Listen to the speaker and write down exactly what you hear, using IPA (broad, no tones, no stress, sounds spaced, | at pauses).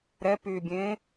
ɾ ɛ p yː bʲ ẽː